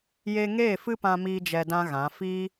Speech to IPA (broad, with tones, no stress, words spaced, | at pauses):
je˧ŋeː˦˨ fɨ˦pã˧ miː˦d͡ʒɛ˧dã˦ɣã˨˦ fiː˦